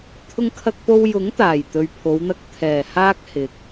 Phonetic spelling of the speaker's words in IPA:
t̪ʰ ʊ˧ ŋ kʰ ɐ˧ k̚ p o˧ w j ʊ˨˥ ŋ t̪ aː˨˩ j t̪ ɵ˨ ɥ pʰ o˨˧ w n̪ ɐ˧ k̚ t̪ʰ ɛː˨˩ h aː˧ k̚ h ɪ˨ k̚

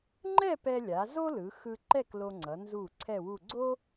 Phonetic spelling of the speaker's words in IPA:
ŋ͡ǃ ɛ˥˧ p ɛ˧ lʲ a˩˧ z o˥ l ɯ˩˧ x ɯ˧ ǃ ɛ˥˧ k l o˧ ŋ͡ǀ ʌ˩˧ n z u˧˩ ǀʰ ɛ˥˧ w u˥˧ ɡ͡ǀ o˥

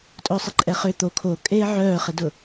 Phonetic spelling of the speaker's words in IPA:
tʼ ʊː sˤ ɪ ǃʼ ɛ χ ʏ t̪ o kʰ o kʼ eː ʕ œː χ ɪ d ʊ

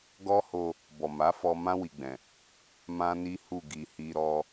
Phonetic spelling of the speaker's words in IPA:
ɡ ɔ˦ h o˧ | b ɔ˨ m a˨˦ f ɔ˧ m ã˦ w i˧ ɡ͡b ɛ̃˨ | m ã˦ n i˦ h u˦˨ ɡ i˨ h i˧ ɾ ɔ˦

